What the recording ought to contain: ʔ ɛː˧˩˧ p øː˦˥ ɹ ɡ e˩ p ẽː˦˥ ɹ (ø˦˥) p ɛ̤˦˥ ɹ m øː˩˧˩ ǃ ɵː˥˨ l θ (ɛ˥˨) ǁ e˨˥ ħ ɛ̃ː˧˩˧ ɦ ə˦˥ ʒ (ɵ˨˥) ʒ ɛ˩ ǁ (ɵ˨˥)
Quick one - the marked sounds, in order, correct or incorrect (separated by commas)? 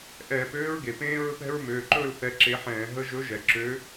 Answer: incorrect, incorrect, correct, incorrect